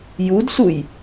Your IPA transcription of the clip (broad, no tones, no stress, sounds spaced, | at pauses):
j u d s u j